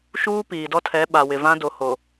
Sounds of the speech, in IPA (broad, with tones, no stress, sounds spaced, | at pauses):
ʃ uː˦ p iː˨ d ɔ˦ tʰ ɛ˨˦ ɓ a˨ w ɪ˨ v ã˦ d o˨ h o˨